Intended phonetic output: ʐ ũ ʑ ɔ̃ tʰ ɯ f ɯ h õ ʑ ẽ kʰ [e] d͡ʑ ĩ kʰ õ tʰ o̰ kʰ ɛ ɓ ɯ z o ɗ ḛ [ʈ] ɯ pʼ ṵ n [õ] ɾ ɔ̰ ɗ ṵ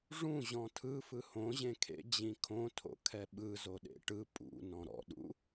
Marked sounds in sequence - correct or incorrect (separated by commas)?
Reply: incorrect, correct, incorrect